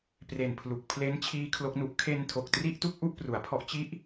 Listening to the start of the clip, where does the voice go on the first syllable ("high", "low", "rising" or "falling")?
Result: low